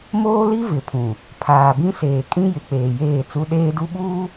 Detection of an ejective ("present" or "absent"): present